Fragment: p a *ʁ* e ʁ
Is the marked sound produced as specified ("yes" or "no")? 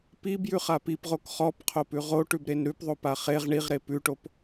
no